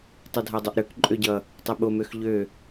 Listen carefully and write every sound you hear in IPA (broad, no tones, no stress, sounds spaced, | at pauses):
tˤ ʌ dʱ a dˤ ɛ ʔ ɾ ø k ǃʼ ø ɟ ʌ | tˤ ɛ ɓ o m ø x ʎ ø